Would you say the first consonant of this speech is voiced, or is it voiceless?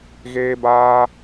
voiced